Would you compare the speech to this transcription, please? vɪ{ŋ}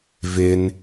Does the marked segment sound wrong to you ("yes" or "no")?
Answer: yes